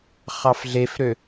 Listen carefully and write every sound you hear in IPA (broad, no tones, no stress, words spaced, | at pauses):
χɑfɮefɾø